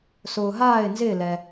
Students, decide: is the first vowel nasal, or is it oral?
oral